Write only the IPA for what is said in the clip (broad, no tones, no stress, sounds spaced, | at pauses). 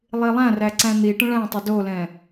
lˠ i lˠ æ̃ r æ ǀ æ̃ n̪ i ʈ ə̃ ɭ æ̃ tˤ ə d o l ɛ̃